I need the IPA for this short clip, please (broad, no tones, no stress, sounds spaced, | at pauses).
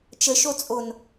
t͡ʃ ə ʃ o t͡sʼ o n